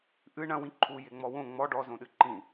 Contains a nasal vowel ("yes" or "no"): yes